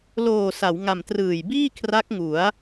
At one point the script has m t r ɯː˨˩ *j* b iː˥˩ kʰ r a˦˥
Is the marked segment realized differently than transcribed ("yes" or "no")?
no